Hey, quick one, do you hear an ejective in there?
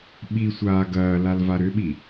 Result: no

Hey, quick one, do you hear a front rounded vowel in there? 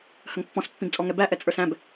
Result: no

